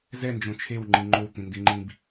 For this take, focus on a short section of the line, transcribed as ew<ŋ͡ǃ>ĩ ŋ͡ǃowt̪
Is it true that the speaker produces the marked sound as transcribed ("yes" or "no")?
yes